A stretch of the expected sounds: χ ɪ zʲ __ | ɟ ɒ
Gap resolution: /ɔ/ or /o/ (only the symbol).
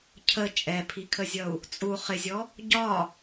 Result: ɔ